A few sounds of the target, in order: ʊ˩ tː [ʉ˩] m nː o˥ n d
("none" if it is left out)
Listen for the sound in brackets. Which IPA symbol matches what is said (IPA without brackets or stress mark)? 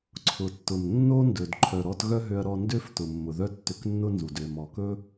ʊ˩